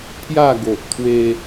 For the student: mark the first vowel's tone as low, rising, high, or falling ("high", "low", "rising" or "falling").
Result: falling